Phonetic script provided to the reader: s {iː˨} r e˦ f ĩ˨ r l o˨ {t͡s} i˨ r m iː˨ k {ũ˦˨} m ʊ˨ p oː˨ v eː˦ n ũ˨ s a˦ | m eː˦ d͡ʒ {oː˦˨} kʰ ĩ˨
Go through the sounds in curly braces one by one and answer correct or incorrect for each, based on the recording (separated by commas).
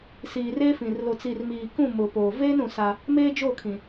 correct, correct, correct, correct